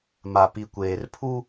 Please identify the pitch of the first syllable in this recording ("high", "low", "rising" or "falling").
low